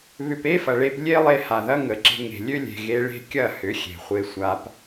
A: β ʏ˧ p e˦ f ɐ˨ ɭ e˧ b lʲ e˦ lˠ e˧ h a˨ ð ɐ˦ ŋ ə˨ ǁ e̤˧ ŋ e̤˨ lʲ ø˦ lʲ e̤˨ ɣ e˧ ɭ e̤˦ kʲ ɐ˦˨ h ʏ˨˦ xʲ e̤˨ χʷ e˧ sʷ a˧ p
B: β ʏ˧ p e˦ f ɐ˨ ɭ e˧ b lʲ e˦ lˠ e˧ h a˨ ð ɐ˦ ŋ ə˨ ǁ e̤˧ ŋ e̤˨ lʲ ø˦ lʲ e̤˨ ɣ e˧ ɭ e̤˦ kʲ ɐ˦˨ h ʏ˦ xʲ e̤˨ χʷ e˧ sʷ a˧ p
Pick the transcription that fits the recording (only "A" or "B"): A